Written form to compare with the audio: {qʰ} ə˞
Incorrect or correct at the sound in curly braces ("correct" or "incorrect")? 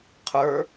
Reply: correct